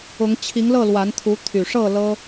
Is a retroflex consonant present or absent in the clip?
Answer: present